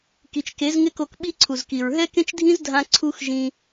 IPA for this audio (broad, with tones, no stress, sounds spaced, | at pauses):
k i˨ t͡ʃ k e˨˦ z ŋ ɪ˦ k o˧ k ɓ i˦ ǀʰ u˨ z k i˨ ɹ ɦ ɛ˦ k ẽ˦ t͡ʃ dʱ ĩ˦ z dʱ ã˧ ǀʰ u˦ x ʒ ĩ˧